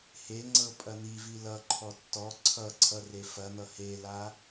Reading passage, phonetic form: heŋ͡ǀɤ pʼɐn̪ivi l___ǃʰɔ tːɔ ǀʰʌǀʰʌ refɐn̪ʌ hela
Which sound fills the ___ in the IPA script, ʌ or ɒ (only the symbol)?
ʌ